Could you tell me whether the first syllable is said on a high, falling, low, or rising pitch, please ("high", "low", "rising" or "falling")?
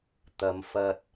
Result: low